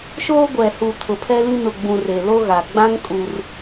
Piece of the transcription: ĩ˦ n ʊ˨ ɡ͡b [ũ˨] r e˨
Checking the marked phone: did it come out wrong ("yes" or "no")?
no